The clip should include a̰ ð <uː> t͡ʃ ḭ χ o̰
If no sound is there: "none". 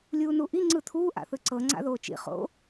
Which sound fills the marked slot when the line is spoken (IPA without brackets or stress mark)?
oː